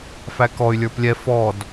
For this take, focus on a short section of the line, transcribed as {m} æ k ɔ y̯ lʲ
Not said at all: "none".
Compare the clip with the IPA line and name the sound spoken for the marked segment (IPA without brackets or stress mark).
f